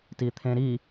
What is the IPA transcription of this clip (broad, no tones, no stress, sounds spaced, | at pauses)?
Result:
t i t̪ʰ ẽ ɾ i